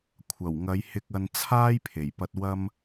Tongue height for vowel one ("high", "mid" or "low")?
low